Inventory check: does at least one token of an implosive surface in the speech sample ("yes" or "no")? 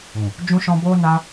no